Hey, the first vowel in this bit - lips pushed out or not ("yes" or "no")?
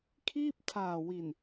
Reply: no